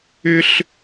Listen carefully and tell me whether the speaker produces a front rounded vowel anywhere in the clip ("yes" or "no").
yes